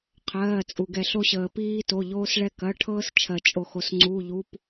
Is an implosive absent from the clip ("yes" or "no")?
yes